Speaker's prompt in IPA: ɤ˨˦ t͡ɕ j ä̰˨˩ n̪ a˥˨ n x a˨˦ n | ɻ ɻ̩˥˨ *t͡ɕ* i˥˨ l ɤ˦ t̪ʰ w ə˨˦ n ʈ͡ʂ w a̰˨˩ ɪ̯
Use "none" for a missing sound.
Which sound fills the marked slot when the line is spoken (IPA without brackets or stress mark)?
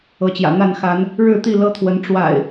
t̪